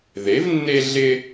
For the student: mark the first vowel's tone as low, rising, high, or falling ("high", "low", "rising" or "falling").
rising